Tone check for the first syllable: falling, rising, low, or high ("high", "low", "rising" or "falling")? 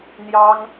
high